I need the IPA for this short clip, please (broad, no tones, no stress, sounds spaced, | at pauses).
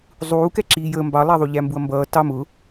zˤ uː k ɛ ǁ iː j əː m b ɑ lˠ æ ðˤ u ʎ æ m b u ɐ̯ m b ʌː t ɑ m ʊ